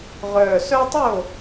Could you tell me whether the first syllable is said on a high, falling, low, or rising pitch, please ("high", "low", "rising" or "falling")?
low